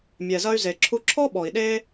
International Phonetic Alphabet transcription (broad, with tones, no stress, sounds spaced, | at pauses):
mʲ ɛ˩ z ɐ˧ y̯ z e˩ ǁʰ u˧ ǁʰ ɔ˥ ɓ ɔ˩ i̯ ɗ e˥